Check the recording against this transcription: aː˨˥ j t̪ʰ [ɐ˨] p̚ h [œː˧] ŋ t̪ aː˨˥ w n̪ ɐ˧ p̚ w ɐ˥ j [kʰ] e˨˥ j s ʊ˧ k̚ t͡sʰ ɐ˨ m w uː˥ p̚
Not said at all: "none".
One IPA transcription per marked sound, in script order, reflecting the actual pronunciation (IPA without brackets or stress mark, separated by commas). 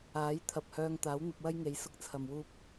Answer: ɐ˨, œː˧, ŋ